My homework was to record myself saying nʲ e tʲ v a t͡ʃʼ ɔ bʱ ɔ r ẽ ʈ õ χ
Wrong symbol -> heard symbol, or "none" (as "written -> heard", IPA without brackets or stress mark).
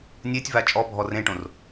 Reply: χ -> r